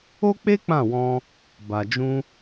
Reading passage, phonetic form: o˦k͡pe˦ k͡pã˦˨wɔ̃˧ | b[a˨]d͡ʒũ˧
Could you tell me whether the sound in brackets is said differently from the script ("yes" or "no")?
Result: no